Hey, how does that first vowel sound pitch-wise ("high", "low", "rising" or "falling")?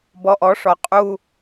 low